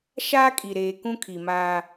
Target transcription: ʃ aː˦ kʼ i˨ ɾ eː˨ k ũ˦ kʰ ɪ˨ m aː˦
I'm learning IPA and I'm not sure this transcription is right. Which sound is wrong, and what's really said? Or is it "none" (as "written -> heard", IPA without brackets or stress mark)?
ɪ˨ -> i˨